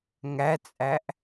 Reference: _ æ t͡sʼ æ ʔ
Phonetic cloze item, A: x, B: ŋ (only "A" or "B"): B